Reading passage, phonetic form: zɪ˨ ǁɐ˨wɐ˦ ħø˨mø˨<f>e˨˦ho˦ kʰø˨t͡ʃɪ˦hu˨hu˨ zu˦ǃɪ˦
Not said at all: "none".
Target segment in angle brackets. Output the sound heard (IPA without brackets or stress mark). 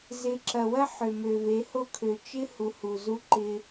v